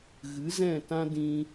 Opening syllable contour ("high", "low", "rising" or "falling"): rising